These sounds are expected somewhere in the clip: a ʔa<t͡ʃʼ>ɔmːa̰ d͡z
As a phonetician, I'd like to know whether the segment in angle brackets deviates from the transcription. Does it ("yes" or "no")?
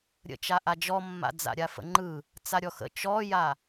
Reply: yes